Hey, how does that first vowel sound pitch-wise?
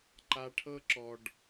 high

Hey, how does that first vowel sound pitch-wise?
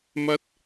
high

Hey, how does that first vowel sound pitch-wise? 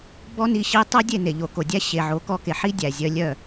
high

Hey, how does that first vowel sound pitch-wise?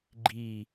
low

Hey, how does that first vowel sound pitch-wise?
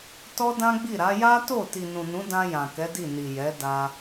high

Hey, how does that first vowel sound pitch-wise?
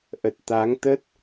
low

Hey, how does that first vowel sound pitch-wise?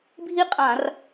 high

